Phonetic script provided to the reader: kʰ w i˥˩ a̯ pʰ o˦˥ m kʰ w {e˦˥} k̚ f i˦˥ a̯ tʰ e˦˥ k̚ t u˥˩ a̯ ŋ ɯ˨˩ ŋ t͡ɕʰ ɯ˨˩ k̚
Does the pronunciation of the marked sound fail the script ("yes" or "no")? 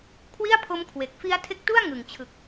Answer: yes